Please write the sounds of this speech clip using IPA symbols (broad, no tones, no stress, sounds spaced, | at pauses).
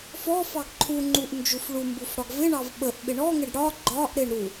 f ɔ f ɑ ɡ ǃʰ u ŋ͡ǃ u ʔ n d͡ʒ u f ɭ u m b u f ɽ ɒ ɡ v ɪ ɳ ɑ v ɓ ə ʔ ɓ ɪ ɳ ɔ ŋ ɪ ɖ ɽ ɒ ɡ͡ǃ ɒ ʔ ɾ ɪ ɳ ɾ u